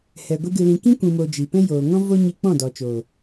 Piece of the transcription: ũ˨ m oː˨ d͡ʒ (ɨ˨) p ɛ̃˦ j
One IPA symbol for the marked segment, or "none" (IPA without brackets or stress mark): i˨